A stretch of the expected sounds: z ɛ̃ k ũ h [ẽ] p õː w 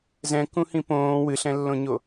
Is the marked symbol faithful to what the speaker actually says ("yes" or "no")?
no